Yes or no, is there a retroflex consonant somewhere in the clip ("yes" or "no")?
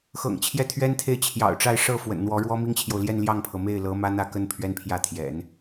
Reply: yes